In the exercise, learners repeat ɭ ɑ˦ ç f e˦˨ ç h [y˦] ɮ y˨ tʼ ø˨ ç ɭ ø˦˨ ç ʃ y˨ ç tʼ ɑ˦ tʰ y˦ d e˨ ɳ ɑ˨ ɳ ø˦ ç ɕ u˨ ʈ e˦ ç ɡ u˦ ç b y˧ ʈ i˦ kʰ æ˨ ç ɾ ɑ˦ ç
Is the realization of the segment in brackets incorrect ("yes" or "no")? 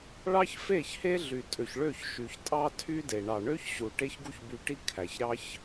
yes